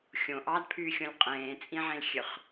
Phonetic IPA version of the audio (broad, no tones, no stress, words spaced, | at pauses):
xʲõ ʔɑdpʰyːxʲõlʲ qʼẽːt͡sʼĩʕẽlxʲøχ